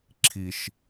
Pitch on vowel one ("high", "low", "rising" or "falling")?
high